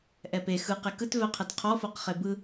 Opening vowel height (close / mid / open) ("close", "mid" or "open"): mid